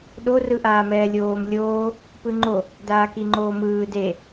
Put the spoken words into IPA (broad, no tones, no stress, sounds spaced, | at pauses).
ɗ o r ɯ ʔ aː m ɛː lʲ oː m lʲ oː | p ɯ ŋ͡ǃ o | d aː k i ŋ͡ǃ oː m ɯː d e